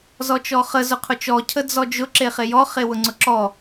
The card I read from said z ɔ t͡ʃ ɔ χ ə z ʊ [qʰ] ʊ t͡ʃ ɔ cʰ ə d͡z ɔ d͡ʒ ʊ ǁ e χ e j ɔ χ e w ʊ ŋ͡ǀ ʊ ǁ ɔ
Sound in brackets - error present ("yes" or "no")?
no